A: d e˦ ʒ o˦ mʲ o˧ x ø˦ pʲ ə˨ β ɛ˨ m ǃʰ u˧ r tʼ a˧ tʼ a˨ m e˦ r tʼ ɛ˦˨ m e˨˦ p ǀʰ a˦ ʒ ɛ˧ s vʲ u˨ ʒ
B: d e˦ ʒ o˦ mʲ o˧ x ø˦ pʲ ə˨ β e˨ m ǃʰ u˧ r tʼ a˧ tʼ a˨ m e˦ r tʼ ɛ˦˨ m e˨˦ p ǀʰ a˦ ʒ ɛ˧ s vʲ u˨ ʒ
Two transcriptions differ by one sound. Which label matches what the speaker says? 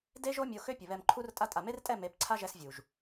A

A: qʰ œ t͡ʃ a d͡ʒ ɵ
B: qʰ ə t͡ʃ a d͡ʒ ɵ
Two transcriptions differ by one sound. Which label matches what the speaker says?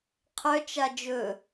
A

